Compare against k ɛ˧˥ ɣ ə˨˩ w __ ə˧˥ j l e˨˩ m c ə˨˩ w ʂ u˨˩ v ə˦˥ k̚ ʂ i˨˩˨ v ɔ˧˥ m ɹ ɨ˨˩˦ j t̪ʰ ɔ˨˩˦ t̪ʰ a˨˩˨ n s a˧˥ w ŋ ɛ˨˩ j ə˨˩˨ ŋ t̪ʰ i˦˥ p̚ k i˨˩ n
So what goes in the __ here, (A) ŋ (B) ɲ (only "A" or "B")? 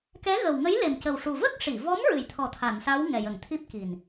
A